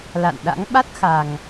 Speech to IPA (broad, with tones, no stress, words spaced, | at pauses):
la̰˧˨nɗa̰˧˥ŋ ɓa˦˥t̚xa˨˩ŋ